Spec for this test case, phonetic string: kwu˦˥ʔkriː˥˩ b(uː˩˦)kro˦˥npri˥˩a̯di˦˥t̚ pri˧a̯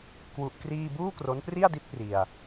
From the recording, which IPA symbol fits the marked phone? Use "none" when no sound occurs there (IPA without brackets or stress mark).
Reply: uː˥˩